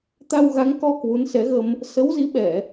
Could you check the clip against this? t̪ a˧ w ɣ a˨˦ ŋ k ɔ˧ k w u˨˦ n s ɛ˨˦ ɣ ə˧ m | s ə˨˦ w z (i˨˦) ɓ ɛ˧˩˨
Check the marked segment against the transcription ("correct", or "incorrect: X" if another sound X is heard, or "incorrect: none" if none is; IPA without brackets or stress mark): correct